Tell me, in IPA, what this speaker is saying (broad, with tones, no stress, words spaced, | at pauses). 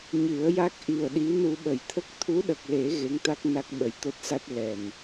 ɲɨ˨˩˦ə̯ja˦˥k̚ ʔi˨˩ə̯ɗi˧˥nu˧ ɓə˨˩jt̪ʰə˦˥k̚ t̪ʰu˧˥ɗə˨˩k̚le˨˩˦ ɣe˧˥ŋt̪a˦˥k̚ na˦˥k̚ɓə˨˩jt̪o˦˥t̚sa˦˥t̚ lɛ˨˩n